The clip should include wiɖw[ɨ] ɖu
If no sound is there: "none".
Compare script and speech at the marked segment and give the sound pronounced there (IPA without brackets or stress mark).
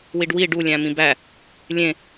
i